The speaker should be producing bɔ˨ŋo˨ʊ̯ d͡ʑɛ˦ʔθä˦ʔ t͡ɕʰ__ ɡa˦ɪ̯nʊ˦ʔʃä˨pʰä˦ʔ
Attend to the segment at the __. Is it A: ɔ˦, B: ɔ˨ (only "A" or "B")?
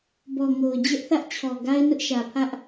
B